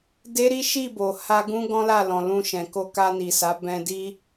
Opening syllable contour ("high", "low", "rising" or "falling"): high